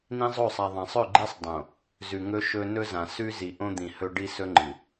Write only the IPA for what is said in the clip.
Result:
n ĩ˦ zˤ o˦˨ sˤ a˨ ðˤ ã˨ sˤ ɵ˦˨ ɡ͡ǃ i˦ sˤ dˤ õ˨ | z ʉ˨ ŋ ɵ˦ ʃ ɵ˦ n ɵ˦ z ã˨ s ʉ˦ z i˨ ʔ õ˦ d̪ ĩ˨ h ɵ˦ ɖ i˦ s ɵ˦ ŋ͡ǃ ɨ˨

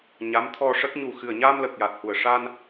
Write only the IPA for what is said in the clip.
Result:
ɲ a˧˥ m t̪ʰ ɔ˧ ʂ ə˦˥ k̚ ɲ u˨˩ x ɨ˨˩ ə̯ ɲ a˧ m l ə˨˩ k̚ j a˨˩ t̚ h u˨˩ ə̯ ʂ a˧ n

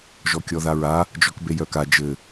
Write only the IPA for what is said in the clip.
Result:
ʒ ɔ kʲ ɔ ð a ɹ a | d͡ʒ ɔ k b e j œ k a d͡ʒ ɘ

